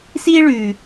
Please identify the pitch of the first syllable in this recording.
high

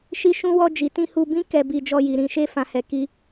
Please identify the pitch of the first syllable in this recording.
high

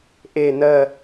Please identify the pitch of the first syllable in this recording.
falling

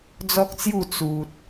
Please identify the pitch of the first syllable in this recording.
high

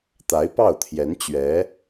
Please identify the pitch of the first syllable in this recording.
rising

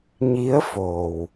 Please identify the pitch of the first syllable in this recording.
rising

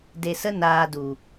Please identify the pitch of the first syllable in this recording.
low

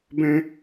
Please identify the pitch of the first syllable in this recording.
high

